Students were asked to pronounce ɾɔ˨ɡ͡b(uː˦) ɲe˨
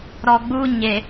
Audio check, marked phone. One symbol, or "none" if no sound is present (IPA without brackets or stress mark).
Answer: uː˦